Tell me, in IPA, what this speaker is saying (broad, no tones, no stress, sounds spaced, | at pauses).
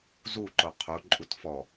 z u ǃ o qʰ u ǃʼ u t f ɔ